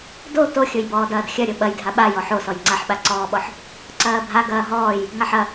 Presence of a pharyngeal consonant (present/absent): present